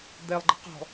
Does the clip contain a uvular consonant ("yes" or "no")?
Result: yes